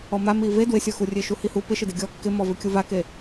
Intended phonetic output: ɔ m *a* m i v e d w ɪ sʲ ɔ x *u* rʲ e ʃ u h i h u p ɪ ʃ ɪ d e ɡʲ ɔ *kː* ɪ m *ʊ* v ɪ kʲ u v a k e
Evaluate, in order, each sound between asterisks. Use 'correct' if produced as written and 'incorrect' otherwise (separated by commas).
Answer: correct, correct, correct, incorrect